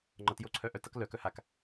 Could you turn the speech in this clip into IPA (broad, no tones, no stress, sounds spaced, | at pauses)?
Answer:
ŋ͡ǃ ʌ t j o ǀʰ œ ʔ œ t ʌ k l œ k œ h a k